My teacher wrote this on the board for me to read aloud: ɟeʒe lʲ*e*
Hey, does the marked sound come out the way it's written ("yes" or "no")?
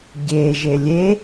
yes